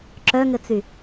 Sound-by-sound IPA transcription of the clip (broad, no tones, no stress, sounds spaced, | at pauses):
ǁ œ ŋ ɘ t͡s y